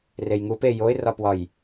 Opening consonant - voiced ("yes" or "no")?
yes